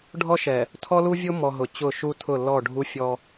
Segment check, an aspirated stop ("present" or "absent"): present